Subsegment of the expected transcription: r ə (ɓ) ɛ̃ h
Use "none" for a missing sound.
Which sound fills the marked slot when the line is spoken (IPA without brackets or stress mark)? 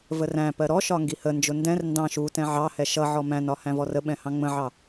ɓ